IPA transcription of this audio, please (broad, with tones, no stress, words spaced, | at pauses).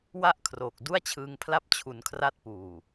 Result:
wa˥˩ʔkʰroː˨˩k̚ du˥˩a̯t͡ɕʰɯː˧ŋpʰla˥˩p̚ t͡ɕʰu˩˦nkʰra˦˥t̚ puː˨˩